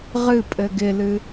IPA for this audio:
ʁ ɨ pʼ ɘ ɡ ɪ l ɨ

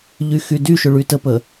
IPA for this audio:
ʎ y x y d y ʃ ʊ ɭ y t ə p ə

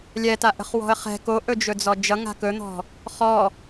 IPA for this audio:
lʲ ɛ t a ʔ ə̤ χ w ɔ̤ ə̯ χ ɛ̤ k o ʔ ɵ d͡ʒ ɵ d͡z ɔ d͡ʒ ʌ ŋ a̤ k ɵ n̪ ɔ̤ | χ ɔ

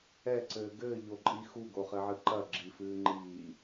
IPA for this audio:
ɛ ǀ ɘː ɡ ɘː ʎ o ǃʼ i x u ɡ o χ ɘ ʕ ɨ ǃ ɐ ɡ͡ǁ i f ɨː ŋ͡ǃ iː

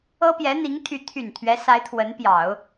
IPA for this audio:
ɤ˥ p j ɛ˧˥ n̪ i˧˥ ŋ t̪ʰ y˧˥ t̪ʰ y˨˩ n t̪ʰ ɥ ɛ˧˥ s a˧˥ ɪ̯ t̪ʰ w ə˧˥ n p j ɑ˨˩˦ ʊ̯

